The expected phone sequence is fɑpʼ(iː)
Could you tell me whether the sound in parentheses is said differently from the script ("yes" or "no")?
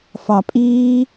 no